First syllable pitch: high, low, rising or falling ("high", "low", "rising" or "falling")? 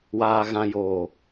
low